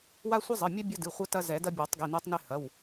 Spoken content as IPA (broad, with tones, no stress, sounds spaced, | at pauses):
w a˦ sʷ i˦ zˤ ɨ˩˧˩ mʲ ɛ˦ bʲ ɐ˦ d ɨ˩˧˩ χʷ ɐ˦ t ɐ˦ z ɛ˨˩˦ d ɐ˦ bʲ ɔ˨˩˦ tˤ ɡ i˩˧˩ n e˦ tˤ n e˦ h ɐ˩˧˩ w